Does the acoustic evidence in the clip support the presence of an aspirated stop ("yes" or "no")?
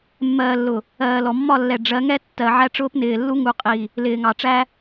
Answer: no